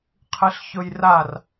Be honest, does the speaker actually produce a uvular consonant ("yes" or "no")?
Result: yes